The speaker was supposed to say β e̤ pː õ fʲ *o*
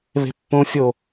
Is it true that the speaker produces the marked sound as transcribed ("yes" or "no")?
yes